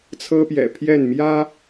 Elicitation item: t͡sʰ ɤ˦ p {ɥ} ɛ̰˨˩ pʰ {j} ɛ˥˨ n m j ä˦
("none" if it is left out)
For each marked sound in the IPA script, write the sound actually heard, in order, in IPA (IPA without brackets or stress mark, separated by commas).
j, j